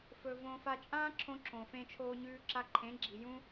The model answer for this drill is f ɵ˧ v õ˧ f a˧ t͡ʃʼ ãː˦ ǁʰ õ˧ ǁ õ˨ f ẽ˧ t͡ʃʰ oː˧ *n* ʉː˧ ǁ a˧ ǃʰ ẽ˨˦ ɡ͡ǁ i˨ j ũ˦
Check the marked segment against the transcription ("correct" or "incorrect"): incorrect